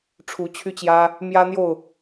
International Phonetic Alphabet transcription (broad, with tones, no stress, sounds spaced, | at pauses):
ʈ͡ʂʰ u˨˦ t͡ɕʰ y˦ t͡ɕ j ä˦ | m j ä˦ n̪ j o˥˨ ʊ̯